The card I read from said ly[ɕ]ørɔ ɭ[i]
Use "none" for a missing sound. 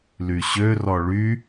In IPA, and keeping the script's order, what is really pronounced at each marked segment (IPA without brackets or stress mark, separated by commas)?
ɕ, y